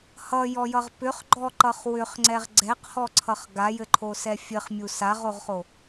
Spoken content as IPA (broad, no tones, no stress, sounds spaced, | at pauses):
h ʌ j ɔ j ʌ ʁ p ʏ χ ɡ͡ǃ ɔ ǃ ʌ χ w ʏ χ ŋ͡ǀ ɛ ʁ ɡ͡ǀ ɛ q h ɔ ǀʰ ʌ χ ɡ a j ɘ ǃʰ o s ɛ fʲ ɘ χ mʲ u s a ʁ o ʁ χ o